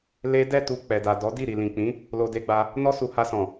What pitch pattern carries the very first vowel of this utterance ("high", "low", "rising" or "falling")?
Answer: high